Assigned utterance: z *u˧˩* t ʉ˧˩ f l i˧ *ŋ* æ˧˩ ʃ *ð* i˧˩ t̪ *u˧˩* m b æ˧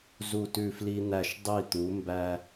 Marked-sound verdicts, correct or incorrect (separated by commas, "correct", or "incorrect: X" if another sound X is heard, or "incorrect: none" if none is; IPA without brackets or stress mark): correct, incorrect: n̪, incorrect: dˤ, incorrect: u˩˧